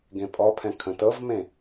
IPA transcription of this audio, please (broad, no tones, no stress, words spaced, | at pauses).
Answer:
ɡẽpʼɔpʰɛ̃ kʰə̃tɤvmẽ